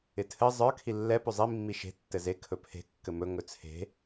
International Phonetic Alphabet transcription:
ɪ tʰ ɘ zˤ ə˞ kʰ i lː ɛ p ɵ zˤ i mː i ʃ e̤ tː ɘ z e kʰ ɵ pʰ e̤ kː ɘ m ɵ ŋ ɵ t͡sʰ e̤

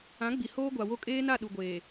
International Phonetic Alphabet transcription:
ã˨˦ ɡ͡b i˨ h oː˦ ɡʷ a˨ w o˦ kʼ eː˦ n a˦˨ ɗ u˨ ɡʷ eː˨

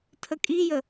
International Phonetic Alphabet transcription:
tʰ ə kʼ i j ə

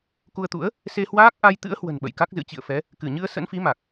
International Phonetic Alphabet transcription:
k u˧ ə̯ t̪ ṵ˧˥ ə̯ | s e˧ h w aː˦˥ k̚ ʔ a˧ j t̪ ɨ̰˧˥ ə̯ h w ə̤˨˩ n ɓ ə̰˧˨ j k a˦˥ k̚ z ɨ̰˧˥ t͡ɕ ḭ˧˨ ə̯ f ɛ˨˦ | k ɨ˧˩ ɲ ɨ˧ ə̯ s ə̰˧˥ n f i˨˦ m a˨˩ k̚

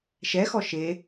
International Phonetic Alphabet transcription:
ʃ ɛ x ɔ ʃ e

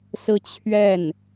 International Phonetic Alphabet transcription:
s ɹ̩˥˧ t͡ɕʰ ɥ ɛ˥˩ n

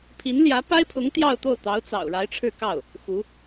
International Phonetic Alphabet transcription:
pʰ i˧˥ n l j ä˧˥ p a˥ ɪ̯ pʰ ʊ˧˥ ŋ t̪ j ɑ˥˧ ʊ̯ t̪ o˥˩ ʊ̯ t̪ ɑ˧˥ ʊ̯ t͡s ɑ̰˨˩ ʊ̯ ɻ a˧˥ ɪ̯ ʈ͡ʂʰ ɻ̩˥˧ k ɑ˥˩ ʊ̯ | x u˧˥

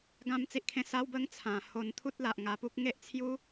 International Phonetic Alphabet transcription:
ɡ ã˥˧ m t͡s i˦ ʔ kʰ ẽ˦ s a˦ w b ə˦ ŋ t͡sʰ ã˨˩ h o˧ n t̪ʰ u˦ t̚ l a˨ ʔ ŋ a˧ p u˦ k̚ ŋ e˦ ʔ t͡sʰ j u˦

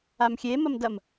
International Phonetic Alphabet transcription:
a m xʲ e m ɐ m d ɐ m

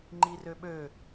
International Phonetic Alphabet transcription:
ŋ͡ǃ i r ø ɓ ø

